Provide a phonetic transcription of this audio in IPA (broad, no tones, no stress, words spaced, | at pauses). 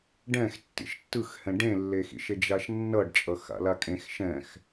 ɖɛ̃x tːḭʃtːɯxhɛ̃ ɖẽlːexḭʃe d͡ʒaʃnːʌɖt͡ʃʼʌ xa̰lakʼẽx ʃɛ̃x